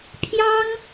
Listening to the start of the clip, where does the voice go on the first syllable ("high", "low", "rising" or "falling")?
high